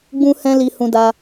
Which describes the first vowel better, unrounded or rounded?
rounded